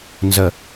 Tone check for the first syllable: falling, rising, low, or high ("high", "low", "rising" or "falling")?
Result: low